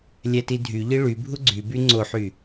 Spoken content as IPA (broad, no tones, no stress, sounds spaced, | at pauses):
lʲ æ t i dʱ y ʎ i ɭ y bʱ u ɡ͡ǀ y b y ŋ͡ǀ o ħ y